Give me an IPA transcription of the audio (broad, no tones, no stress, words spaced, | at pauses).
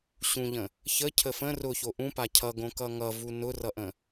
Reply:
ɕũʎə̃ | çə cʰəfə̃ rʊço ʔũpa cʰʌɡõ kʌŋʌvu nʊrʌʔə̃